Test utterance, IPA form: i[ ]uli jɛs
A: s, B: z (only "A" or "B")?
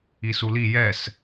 A